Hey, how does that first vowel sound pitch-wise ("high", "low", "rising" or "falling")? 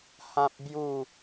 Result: high